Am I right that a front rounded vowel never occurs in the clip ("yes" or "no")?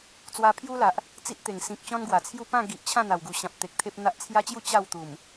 yes